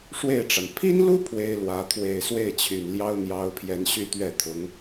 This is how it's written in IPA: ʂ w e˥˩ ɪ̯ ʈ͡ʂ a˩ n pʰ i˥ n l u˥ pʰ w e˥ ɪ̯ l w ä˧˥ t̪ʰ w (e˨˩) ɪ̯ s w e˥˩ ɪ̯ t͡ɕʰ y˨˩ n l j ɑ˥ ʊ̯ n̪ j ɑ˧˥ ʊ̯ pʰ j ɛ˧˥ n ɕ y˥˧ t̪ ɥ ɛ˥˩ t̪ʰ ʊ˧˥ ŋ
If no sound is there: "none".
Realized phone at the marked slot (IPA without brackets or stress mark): e˨˩